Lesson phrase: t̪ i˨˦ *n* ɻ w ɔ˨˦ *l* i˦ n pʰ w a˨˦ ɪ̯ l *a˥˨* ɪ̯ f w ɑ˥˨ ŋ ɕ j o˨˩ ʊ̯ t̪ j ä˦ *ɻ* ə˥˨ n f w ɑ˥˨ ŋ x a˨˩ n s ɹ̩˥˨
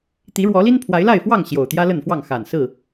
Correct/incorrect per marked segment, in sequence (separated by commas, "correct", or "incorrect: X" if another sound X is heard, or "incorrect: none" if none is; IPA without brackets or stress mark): incorrect: none, correct, correct, incorrect: l